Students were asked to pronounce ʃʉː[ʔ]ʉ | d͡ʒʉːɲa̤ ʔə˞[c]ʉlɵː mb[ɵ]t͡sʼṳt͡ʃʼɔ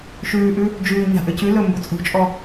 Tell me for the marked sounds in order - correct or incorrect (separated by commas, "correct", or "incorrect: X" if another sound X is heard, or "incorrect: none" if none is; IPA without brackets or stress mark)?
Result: correct, correct, correct